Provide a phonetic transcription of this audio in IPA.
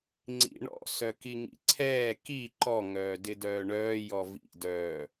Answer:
ŋ͡ǀḭɳɔ̰ sœkiŋḭǀʰɛː ki ǃɔ ŋœːdɪdœːɳœː jɔvḭ dœː

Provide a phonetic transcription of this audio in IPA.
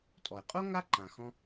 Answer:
tʼɔ˩e̯qʼo˥ ŋa˥ǃã˩xɔ̃˧

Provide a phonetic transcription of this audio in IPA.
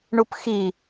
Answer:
ɳupxi

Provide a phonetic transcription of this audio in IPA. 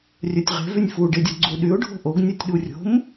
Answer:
rʲœtʲʁe̤ vynʲfu ɖedʲoɡ͡ǀu ɗyʊ̯ ɖʱo̤ʔoɡ nʲʉtʲɗurʲo̤m

